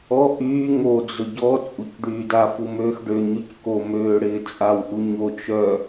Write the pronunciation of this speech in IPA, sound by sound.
ɔ ʔ yː ŋ o d͡z ʊ ɟ ɔ t͡sʼ u c ɖ yː d a f u m øː x ɖ ø ɲ y c k o m øː ɽ ɪː t͡sʼ a w ʔ u ɲ o t͡ʃ œ

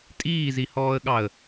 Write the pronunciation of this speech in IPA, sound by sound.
tʼ iː z i h ɔː ə̯ ɠ ɑ ə̯

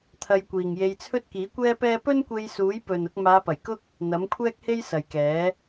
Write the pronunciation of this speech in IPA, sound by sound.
t̪ʰ ɐ˧ j kʷ iː˨ ŋ j e˧ j t͡sʰ ɵ˥ t̚ k iː˨˥ kʷ ɛː˥ p ɛː˥ p ɵ˥ n kʷ e˧ j s uː˨˥ j p ɵ˨ n ʊ˧ k̚ m aː˨˧ p ɐ˨˩ j k ʊ˥ k̚ | n̪ ɐ˨˥ m kʷʰ ɛː˥ k̚ h e˥ j s ɐ˨ j k ɛː˨˥

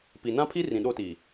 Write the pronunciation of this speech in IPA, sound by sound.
p i˨ n ã˦ pʰ i˦ r ĩ˨ ɗ o˦ t iː˨

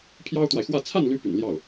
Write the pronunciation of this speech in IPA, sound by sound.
pʰ j ɑ˥ ʊ̯ t̪ w a˨ ɪ̯ x w ä˥˧ t͡sʰ a˥˩ n l y˧˥ p y̰˨˩ n l j ɑ˥˩ ʊ̯

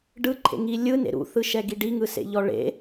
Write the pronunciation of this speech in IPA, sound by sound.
ɖ ɯ ǃʰ ḛ ŋ i lʲ ɯ n ḛ ɾ ṵ θ ɯ ʃ ɛ ɡ i ɖ i ŋ ɯ s ḛ ʎ ɔ ɭ ḛ

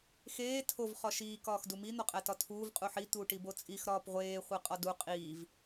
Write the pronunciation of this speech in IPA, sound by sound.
x eː tʰ o v χ ɒ ʃ iː k ɒː x d u m i n̪ ɒ qʼ æ t ɒ tʰ uː v qʼ u ħ i t̪ uː ʈ i b o t͡sʼ i x ɾ ɒː p ʁʷ eː χʷ e qʼ ɒ d u qʼ iː v

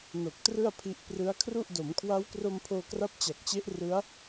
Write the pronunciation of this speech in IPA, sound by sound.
n o˨˩ k̚ t r ɯ˥˩ a̯ pʰ i˦˥ ʔ p r ɯ˦˥ a̯ kʰ r u˥˩ ʔ d o˩˦ m kʰ w a˦˥ w k r o˧ m pʰ oː˧ k r a˦˥ p̚ t͡ɕ a˨˩ k̚ t͡ɕ e˦˥ ʔ r ɯ˦˥ a̯

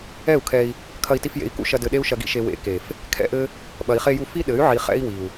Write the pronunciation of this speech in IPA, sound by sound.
ɛ˦˨ u̯ kʰ ɛ˧ i̯ | kʰ ɐ˧ i̯ t i˧ f j ḛ˨˦ i̯ k ṵ˦ ʃ ɐ˧ d ɘ˧ ɗ e˦ u̯ ʃ ɐ˧ ɡ ḭ˦ ʃ e˨ w ḛ˨˦ k e˨ f | kʰ ɛ̰˦ ʔ ɘ˦ | ɓ ɐ˨ i̯ χ e˧ j u˧ f i˦ ɗ ɘ˨˦ y̯ ʕ i˨ χ ɛ̰˦ i̯ w i˨ u̯

